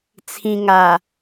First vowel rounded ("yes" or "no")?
no